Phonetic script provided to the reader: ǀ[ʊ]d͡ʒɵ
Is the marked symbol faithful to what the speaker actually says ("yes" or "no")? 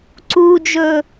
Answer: no